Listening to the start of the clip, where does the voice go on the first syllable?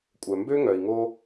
low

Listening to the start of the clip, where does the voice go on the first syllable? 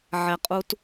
low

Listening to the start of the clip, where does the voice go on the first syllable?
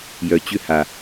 low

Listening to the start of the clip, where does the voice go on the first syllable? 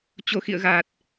low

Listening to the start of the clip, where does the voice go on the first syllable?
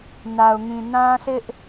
low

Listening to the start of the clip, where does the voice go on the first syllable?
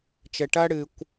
low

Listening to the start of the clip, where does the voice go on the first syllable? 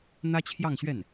high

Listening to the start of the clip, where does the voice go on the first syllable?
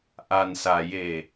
low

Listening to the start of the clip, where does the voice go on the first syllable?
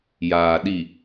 low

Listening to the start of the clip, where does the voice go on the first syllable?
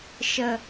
low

